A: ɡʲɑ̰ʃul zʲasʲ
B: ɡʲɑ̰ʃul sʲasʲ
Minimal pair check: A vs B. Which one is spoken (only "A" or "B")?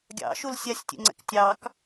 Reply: B